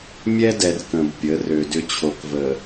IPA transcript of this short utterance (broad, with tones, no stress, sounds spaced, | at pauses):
mʲ ɛ˦ d ɛ˨ r k ə̃˨ b pʲ ə˨˦ r ø˨ d ʏ˦ t͡ɕʰ o˨ k v ə˨